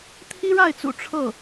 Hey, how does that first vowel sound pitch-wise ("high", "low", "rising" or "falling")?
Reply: high